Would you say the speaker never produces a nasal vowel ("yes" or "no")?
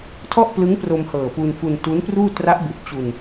yes